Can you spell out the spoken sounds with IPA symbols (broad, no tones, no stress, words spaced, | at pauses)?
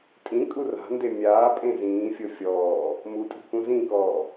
tʼĩkʼu ra̤nde mʲaːpʼẽ zĩːfʲɤ fʲɔː | mutʼi̤kũ zĩkɔː